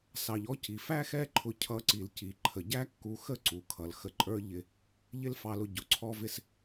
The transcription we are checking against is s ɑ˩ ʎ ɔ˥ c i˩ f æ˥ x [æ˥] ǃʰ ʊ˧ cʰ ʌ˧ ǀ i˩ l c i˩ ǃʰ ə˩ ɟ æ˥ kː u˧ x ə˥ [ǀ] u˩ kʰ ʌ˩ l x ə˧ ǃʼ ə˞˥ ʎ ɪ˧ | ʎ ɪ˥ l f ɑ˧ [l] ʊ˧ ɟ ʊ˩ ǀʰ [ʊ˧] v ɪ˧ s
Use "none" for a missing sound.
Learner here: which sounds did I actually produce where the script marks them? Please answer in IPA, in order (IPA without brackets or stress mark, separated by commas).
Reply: ɛ˥, ǀ, l, ɔ˧